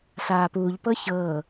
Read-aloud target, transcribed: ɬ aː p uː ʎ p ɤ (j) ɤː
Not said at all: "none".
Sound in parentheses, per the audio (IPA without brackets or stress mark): ç